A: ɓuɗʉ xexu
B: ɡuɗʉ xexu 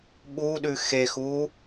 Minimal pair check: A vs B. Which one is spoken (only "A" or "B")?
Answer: A